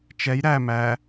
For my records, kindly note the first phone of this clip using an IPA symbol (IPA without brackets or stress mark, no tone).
t͡ʃ